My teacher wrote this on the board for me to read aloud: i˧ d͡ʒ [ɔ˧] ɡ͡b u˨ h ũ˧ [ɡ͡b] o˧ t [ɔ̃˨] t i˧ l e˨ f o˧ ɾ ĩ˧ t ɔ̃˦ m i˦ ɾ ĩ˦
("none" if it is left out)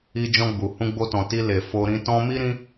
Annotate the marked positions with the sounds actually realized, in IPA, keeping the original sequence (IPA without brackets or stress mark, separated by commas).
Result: ɔ̃˧, ɡ͡b, ɔ̃˨